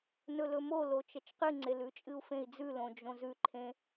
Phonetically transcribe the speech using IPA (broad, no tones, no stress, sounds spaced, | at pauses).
n ɵ l ɵ m o l o t͡ʃ ɐ t͡ʃ q ɨ ŋ͡ǀ e l ʉ t͡ʃʼ ɨ u̯ f ẽ i̯ d͡z ʉ l õ d͡ʒ õ z ʉ ǃʰ ẽ